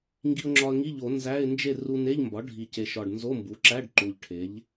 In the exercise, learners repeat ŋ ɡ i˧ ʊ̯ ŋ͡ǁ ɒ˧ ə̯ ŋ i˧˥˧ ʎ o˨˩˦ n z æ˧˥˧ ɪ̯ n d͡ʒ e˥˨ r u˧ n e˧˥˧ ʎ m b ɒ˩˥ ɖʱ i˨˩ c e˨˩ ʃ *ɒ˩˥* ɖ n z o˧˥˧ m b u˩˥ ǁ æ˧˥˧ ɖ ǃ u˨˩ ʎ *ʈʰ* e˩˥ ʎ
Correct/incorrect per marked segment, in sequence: incorrect: ɒ˨˩, correct

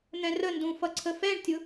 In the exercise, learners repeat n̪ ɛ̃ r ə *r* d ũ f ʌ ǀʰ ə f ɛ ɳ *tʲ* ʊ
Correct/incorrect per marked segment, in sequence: incorrect: n, correct

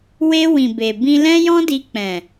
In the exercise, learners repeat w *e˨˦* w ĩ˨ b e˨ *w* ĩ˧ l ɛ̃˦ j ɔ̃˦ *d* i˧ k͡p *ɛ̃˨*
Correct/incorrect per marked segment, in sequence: incorrect: e˧, incorrect: b, correct, correct

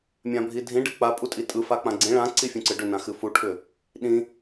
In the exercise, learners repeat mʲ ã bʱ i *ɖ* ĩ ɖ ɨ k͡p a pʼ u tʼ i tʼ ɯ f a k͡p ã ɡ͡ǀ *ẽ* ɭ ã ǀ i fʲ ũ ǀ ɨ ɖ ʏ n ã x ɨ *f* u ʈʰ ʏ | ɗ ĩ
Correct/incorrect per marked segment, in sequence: incorrect: dʱ, incorrect: ĩ, correct

